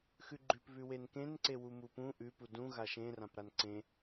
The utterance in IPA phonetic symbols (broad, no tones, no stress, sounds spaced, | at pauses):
x ʉ ɡ͡ǃ ʉ p β ʉ w e n k ẽ n ǀ e w u m u p ũ ʔ ʉ p u d ũ ɣ a ʃ ẽ r ã p ɾ a n ǀ ẽ